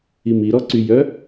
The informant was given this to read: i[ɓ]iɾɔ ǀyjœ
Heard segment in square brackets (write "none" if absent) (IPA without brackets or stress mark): m